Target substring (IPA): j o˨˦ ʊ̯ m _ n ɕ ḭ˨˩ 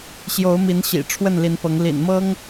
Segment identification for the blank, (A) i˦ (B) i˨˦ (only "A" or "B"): B